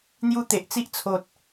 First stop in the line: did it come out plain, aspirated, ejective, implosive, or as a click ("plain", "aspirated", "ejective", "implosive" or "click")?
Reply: plain